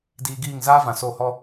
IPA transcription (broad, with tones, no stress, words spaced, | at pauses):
diː˧ɡiː˦˨ŋ zaː˦vã˨ so˦˨hɔ˦